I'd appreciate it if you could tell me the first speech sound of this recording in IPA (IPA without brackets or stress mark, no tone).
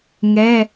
ŋ